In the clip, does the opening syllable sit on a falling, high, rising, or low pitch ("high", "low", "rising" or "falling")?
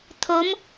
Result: rising